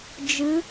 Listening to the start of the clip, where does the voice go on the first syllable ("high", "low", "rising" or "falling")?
rising